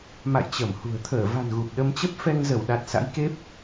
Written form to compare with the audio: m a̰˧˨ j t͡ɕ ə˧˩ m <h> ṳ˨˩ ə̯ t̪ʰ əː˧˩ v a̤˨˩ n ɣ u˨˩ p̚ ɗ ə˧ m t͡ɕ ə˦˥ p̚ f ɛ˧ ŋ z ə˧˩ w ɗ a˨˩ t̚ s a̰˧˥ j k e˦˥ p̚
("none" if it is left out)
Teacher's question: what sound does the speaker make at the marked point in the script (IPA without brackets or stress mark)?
h